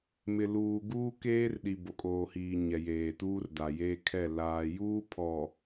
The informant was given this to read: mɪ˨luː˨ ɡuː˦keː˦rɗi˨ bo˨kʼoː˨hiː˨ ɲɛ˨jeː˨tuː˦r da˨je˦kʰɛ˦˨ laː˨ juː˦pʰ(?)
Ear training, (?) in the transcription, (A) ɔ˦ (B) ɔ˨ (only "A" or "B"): B